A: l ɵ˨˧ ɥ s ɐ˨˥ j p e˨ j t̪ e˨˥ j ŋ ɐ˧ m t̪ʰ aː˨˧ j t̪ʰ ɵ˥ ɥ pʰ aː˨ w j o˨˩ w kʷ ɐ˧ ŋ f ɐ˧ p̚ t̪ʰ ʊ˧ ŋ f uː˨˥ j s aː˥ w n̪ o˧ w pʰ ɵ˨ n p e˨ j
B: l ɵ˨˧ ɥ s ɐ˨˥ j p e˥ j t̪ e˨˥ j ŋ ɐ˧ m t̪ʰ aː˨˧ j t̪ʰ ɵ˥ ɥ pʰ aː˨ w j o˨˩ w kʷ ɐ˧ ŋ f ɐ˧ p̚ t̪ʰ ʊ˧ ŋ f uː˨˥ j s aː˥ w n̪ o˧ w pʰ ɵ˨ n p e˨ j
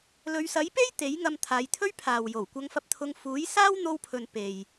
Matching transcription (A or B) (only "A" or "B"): B